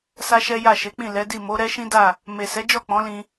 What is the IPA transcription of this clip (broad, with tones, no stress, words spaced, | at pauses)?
sa˦ʃɛ˦ ja˦˨ʃe˨˦k͡pĩ˦˨ lɛ˨˦di˦˨ mo˨˦ɾɛ˦ʃĩ˦da˦˨ | me˨sɛ˨˦d͡ʒɔ˦˨ k͡pɔ̃˨˦lĩ˧